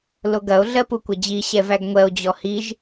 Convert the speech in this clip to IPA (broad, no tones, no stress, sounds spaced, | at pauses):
l o ɡ ɐ o̯ ɮ ɜ p u kʷ ɐ d͡ʑ i ɕ ɛ v æ ɡ ŋʷ ɜ o̯ d͡ʑ ɔ h i ʒ